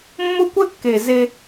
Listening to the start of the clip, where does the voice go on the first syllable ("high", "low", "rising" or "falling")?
high